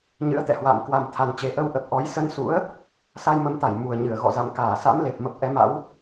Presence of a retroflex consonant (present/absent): absent